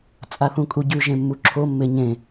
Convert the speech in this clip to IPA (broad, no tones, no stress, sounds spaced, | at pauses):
t͡sʼ a θ ũ kʼ u ɟ ʉ ʒ ẽ mː u ǁʰ o mː e ɲ ẽ